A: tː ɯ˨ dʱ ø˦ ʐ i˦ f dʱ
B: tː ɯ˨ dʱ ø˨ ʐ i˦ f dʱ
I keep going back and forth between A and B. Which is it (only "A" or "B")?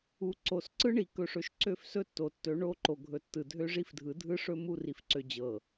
A